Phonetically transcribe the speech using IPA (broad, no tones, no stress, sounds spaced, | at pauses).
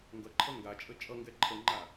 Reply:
ŋ ɡ ʌ ǃʰ ʌ ŋ ɡ a t͡ʃʼ ə t͡ʃʼ ʌ ŋ ɡ ɛ ǃʰ ə ŋ͡ǃ a